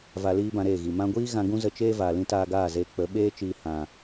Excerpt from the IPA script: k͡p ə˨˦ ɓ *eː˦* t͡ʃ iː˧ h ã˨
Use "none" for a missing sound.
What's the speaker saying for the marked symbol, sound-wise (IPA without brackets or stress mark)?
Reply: eː˦